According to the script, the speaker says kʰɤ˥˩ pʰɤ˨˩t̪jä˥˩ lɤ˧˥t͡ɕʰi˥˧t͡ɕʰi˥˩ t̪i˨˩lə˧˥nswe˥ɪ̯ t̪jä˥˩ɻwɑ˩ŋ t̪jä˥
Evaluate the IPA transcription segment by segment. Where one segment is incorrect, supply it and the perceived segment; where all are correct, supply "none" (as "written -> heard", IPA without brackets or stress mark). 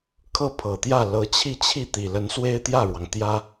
none